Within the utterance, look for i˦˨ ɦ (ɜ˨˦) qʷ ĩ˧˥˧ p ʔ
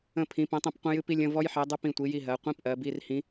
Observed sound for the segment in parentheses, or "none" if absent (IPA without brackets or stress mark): ɜ˨˦